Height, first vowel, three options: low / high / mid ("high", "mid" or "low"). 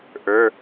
mid